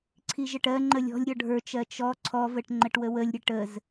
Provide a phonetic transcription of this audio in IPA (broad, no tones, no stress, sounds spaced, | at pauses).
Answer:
ǀʰ i ʒ ə ʈ ɜ ŋ͡ǃ ə lʲ ɔ̤ lʲ ɾʲ ɔ ɖʱ ə˞ t͡ʃ ɜ t͡ʃ ɔ ǀʰ ɔ v ə ʈ ŋ͡ǃ ə ʈ w ə w ə lʲ ɾʲ ə ʈ ə z